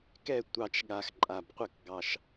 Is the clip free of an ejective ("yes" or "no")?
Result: no